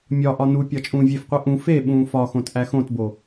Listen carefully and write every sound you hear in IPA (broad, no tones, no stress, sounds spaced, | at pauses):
mʲ ɒ ʔ ɒ n u pʲ ɒ t͡ʃʼ ũː vʲ e f qʷ i ʔ ũ f e ɓ ũː f ɒ x õ t ʔ æ x õ t b o